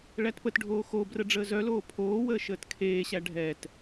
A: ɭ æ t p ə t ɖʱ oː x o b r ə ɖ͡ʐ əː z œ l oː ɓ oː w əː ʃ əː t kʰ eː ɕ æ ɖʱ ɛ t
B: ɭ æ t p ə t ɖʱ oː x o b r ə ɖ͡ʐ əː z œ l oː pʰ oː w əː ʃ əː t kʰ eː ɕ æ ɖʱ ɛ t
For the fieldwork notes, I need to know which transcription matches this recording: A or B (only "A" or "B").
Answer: B